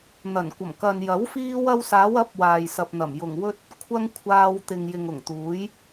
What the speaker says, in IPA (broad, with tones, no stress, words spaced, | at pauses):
n̪ɐ˨˩nkʷɐ˨˩mkɐ˨njɐ˨˥w fiː˧wɐ˧wsaː˨˧w ɐ˨˥p̚ waː˨jsɐ˨p̚n̪ɐ˨˩m jʊ˨˩ŋwɵ˥t̚ | kʷʰɐ˥ŋkʷʰaː˧w t̪ɪ˨ŋjɪ˨ŋʊ˨˩ŋt̪uː˨˥j